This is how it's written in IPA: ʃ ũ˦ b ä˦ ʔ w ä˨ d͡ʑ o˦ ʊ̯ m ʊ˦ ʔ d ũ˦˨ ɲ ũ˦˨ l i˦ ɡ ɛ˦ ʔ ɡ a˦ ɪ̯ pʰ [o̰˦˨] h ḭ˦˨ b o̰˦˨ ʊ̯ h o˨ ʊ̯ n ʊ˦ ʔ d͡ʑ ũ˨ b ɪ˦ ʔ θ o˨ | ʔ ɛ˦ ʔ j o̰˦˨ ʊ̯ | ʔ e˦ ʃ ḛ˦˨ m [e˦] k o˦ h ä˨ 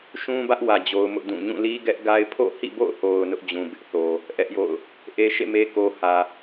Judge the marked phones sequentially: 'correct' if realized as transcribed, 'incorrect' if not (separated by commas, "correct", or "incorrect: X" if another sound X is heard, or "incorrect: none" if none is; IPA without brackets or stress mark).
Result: correct, correct